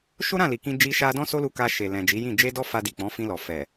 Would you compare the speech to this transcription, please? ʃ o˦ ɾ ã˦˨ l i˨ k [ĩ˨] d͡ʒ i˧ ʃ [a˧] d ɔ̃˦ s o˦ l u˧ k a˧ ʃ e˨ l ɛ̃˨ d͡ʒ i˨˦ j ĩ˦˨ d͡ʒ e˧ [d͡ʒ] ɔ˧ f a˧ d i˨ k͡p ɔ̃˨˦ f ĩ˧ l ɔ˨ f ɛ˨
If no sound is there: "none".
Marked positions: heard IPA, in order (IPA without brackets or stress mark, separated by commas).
ĩ˧, a˧, d